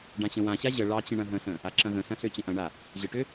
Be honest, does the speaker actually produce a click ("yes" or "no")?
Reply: yes